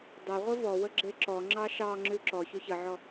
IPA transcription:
dˤ e ʁʷ ɘ v ɔ w ə ɡ͡ǁ e ǁ ɔ ŋ͡ǁ ɑ ʃ ɑ ŋ͡ǁ ʉ ǁ ɔ ç ʉ ç ə ʕ ɔ

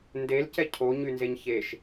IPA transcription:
n d e l c ɛ cʰ o ɲ y n z e ɲ ç e ʃ

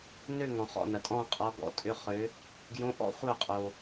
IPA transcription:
n ø˥˧ ŋ ɔ̃˨ χ ɔ̰˧˥˧ n ɐ˨ tʼ ɔ̃˥˧ qʼ ɔ˧˥ ɡ ɔ̰˧˥˧ tʼ ʏ˧˥˧ χ ø˧˥ | ɡ j õ˧˥ ʔ ɔ̰˥˧ χʷ œ˥˧ qʼ o˨

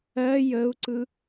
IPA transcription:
ɜ j ə u̯ ǀ ɯ

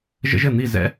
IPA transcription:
ʒ ə̰˥ ʒ ɘ˥˩ n̪ i˥˩ z ɛ̰˥

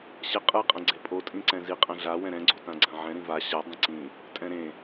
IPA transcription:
ɕ ɛ qʼ ɯ qʼ ɛ̃ ɡ͡ǀ e pʼ o tʼ ĩ ǀ ɛ̃ z i qʼ ɛ̃ ɮ a w ɛ̃ ɾ ɛ̃ ɡ͡ǀ o t ã ɡ͡ǀ ã ʕ ɛ̃ ɾ ĩ v a ɕ a dˤ ĩ ǀ ĩ | tʼ ɛ̃ ɾ ẽ

